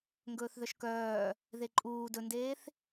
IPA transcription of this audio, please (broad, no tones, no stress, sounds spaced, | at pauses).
ŋ ɡ ɵː θ ð œ ʃ k œː | ð e ǃʼ uː d ɵ n d eː θ